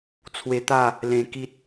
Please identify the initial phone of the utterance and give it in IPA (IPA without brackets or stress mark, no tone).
t͡sʰ